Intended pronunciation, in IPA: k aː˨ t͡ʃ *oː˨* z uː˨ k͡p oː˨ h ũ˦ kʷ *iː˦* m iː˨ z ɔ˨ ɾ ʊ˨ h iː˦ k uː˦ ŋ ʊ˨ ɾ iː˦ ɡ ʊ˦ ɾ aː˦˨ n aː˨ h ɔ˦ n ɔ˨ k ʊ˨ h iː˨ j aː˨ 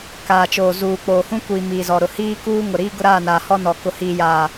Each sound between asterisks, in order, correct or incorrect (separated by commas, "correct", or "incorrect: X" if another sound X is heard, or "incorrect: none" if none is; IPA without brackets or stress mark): correct, incorrect: iː˨